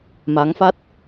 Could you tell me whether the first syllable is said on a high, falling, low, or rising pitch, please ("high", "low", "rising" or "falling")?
rising